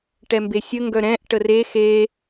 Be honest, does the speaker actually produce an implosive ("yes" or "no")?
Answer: no